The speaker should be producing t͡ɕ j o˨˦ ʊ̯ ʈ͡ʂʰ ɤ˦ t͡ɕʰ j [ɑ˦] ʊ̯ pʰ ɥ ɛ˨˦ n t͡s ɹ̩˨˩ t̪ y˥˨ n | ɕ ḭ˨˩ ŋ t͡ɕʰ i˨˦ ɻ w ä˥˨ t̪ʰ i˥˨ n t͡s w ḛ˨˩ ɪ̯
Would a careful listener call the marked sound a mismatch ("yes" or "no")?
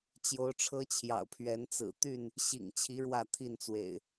yes